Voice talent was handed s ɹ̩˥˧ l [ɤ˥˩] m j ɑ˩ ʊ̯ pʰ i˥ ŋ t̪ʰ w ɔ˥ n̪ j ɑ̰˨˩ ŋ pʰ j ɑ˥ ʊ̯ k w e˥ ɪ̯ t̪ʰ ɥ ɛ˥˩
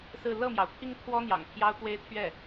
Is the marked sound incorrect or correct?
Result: correct